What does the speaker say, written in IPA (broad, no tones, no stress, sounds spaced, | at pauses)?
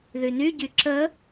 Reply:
ð y n y ɟ y ǁ ə